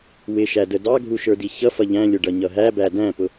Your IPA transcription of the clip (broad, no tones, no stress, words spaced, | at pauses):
wɪʃædə dɑɡʱuʃə˞di çʌfʌ ʎæ̃lʲʊɖʌɲʌ ɦæbæ dæ̃pʊ